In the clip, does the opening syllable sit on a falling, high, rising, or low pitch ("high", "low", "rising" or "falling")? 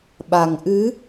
low